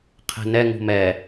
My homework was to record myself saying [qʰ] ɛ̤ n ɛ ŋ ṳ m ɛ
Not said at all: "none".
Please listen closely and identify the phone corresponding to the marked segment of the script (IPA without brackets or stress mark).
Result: qʰ